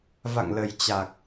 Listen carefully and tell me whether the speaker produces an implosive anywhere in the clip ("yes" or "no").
no